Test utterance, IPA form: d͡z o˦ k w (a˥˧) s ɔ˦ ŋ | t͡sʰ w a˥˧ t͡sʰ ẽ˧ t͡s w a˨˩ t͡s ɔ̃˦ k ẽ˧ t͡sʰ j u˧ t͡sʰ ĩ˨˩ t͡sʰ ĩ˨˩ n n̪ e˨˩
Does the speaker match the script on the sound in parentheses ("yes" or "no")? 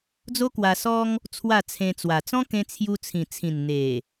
no